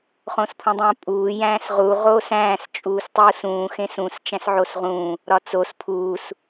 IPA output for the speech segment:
χõspʰũdˤõːpʼuː jæ̃ːsʁu ʁoːsæ̃ːs t͡ʃʼuːstˤuːsũː xẽsũs t͡ʃæ̃sʕosʁũː | ɾɒt͡sos pʰuːs

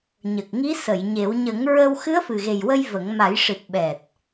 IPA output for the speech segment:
ɲə˨˩k̚ŋi˧˥sə˨˩˨j ɲe˨˩˦w ɲə˨˩˦ŋɹə˧w xɨ˧˥ə̯fɨ˨˩ɣe˨˩jwə˧j və˨˩˦ŋ ma˨˩˦jʂɨ˨˩t̚ ɓɛ˨˩t̚

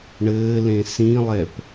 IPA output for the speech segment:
ɳɘːlẽ sĩlˠɛp

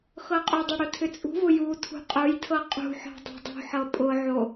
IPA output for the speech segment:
xɤqʼʏdˤʊ ɽʊtʰʏt͡sʼṳvʊ ju tʰṳqʼʊjtʰɤ qʼṳħɔ̤ dˤo̤dˤṳħɤ pʼʊʕo

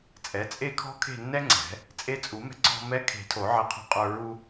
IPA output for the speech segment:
t͡sʼɛ˩˥t͡sʼe˥˨kʰɔ̤˥ kʰe̤˥˨nːɛ˥ŋ͡ǀɛ̤˨˩˦ | t͡sʼe˧t͡sʼu˨˩˦mɛ̤˧ ǀɔ̤˧mɛ˧˥kʰe̤˨˩˦ tʰo˨˩˦ʕɛ˧qʰɔ̤˧qʼə˞˧ ɹu˧

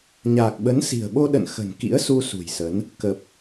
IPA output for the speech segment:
ɲaː˨˩k̚ ɓə˨˦nsi̤˨˩ə̯ɓo˧ ɗə̰˧˨n xə̤˨˩nkḭ˧˥ə̯su˧ sṳ˨˩jsə˨˦n | kə˨˩p̚

